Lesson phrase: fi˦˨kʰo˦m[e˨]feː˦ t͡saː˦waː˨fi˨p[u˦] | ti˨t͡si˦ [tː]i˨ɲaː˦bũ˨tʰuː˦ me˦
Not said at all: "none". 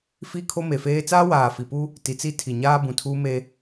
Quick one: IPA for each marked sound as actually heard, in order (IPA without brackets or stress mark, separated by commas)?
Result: e˨, u˦, tʰ